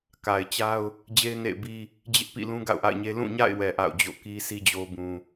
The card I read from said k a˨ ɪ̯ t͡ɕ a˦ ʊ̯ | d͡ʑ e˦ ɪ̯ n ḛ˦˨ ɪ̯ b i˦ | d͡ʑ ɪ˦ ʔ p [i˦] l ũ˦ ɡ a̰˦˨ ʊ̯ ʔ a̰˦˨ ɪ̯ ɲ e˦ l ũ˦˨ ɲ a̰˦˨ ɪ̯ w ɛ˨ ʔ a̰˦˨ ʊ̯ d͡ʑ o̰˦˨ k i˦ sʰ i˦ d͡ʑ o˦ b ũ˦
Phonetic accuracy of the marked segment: incorrect: ḭ˦˨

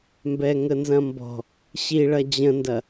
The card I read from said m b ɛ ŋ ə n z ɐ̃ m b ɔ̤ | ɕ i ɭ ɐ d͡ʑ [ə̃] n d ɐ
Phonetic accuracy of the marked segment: correct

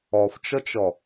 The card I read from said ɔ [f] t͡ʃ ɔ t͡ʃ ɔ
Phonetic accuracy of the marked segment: correct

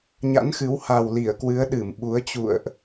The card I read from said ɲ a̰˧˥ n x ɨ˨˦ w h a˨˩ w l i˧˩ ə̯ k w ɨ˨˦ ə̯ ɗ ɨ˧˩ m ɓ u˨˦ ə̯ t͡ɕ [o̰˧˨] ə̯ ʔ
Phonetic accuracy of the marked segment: incorrect: ṵ˧˨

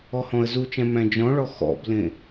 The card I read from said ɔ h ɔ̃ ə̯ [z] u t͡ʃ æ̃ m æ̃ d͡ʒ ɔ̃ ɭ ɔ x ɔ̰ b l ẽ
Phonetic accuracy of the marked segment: correct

